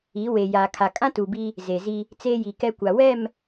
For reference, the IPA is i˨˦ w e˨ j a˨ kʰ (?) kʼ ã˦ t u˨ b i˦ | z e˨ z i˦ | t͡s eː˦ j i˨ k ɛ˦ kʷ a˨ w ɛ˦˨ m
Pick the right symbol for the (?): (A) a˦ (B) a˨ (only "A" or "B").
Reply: B